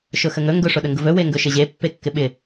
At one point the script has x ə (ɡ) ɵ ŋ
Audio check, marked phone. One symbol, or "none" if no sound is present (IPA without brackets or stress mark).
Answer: ŋ